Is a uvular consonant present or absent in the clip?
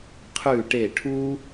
present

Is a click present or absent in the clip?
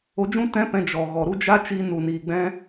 absent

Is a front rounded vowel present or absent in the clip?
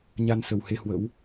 absent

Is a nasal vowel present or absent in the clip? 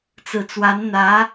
absent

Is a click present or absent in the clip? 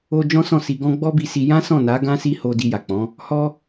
absent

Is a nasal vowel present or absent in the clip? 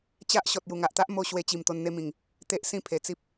present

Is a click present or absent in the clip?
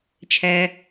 absent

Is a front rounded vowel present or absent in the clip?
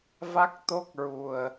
absent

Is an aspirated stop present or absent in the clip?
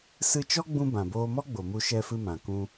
absent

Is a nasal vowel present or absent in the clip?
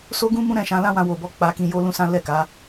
present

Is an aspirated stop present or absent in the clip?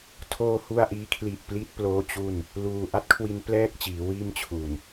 present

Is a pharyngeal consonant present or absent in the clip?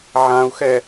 present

